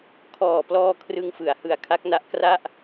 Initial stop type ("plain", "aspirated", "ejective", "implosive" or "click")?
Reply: aspirated